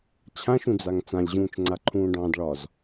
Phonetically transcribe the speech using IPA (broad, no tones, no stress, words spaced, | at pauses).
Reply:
t͡ɕʰãʃũd͡zaŋ t͡sãlʲʑũːt͡ʃŋ͡ǀaǃʰũː ɖɑ̃dɭɒz